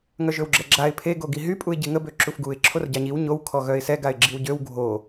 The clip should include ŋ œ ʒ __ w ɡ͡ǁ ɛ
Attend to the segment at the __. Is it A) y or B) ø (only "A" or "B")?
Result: B